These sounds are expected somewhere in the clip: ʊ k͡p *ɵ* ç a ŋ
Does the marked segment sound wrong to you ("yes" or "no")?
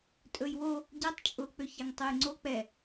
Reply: yes